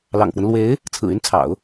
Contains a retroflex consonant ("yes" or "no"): no